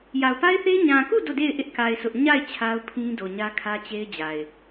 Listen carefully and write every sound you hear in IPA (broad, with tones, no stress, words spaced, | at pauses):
ja˨ʊ̯pa˦ɪ̯θe˦ɪ̯ ɲã˨ku˦˨ do˦˨de˦˨ɪ̯ ʔɪ˦ʔka˨ɪ̯ sʰʊ˦ʔ ɲa˦˨ɪ̯ t͡ɕʰa˦ʊ̯pʰĩ˦do˨ ɲä˦kʰä˦t͡ɕe˦ɪ̯d͡ʑa˨ɪ̯